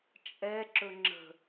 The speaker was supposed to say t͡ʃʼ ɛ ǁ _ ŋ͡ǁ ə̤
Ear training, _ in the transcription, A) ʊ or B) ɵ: B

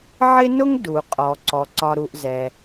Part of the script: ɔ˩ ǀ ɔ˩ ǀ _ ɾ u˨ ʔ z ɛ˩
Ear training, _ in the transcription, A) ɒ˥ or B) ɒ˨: B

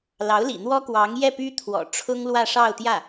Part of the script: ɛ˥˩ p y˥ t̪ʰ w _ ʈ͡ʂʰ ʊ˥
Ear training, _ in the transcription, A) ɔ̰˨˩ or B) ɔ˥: A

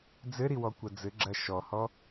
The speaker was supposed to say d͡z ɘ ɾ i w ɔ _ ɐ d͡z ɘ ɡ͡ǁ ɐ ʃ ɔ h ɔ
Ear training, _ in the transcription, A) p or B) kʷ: B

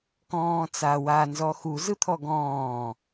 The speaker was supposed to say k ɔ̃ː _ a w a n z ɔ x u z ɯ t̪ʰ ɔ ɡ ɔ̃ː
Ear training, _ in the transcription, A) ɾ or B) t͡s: B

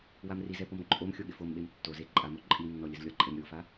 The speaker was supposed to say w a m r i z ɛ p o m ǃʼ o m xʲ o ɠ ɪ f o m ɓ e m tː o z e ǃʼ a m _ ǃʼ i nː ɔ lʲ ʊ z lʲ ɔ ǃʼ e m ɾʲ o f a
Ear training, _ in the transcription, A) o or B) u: A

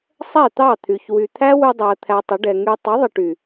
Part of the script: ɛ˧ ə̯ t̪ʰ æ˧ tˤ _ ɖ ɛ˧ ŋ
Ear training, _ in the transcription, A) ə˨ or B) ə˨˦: B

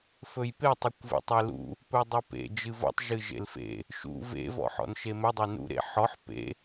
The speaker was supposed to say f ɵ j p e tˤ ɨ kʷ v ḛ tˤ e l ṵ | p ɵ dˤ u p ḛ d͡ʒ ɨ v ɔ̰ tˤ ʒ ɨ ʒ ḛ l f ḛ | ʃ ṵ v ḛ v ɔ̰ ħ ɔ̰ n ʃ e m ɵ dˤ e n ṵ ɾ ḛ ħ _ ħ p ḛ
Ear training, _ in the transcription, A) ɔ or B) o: A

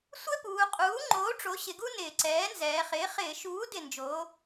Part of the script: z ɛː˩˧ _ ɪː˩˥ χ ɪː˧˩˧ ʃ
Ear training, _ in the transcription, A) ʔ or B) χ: B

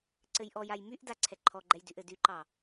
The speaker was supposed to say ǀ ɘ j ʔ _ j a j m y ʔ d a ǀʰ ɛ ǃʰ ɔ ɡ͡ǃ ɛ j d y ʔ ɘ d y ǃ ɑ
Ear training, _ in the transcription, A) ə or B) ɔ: B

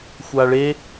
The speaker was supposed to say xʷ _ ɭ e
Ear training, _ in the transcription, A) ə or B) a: B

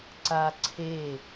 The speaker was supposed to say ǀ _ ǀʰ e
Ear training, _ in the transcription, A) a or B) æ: A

